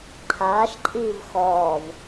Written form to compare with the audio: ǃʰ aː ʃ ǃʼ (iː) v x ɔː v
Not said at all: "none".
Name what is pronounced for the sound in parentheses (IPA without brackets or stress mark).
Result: iː